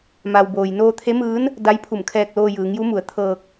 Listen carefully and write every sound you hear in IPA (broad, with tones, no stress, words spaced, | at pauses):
ma˩w boː˩jnoː˧t̪ʰe˧˥mɯː˧˥n | da˧˥jpʰu˧˩mkʰɛː˧k̚loː˧ jɯː˩˧ŋju˧˥mu˩˧ə̯ t̪ʰɤː˧k̚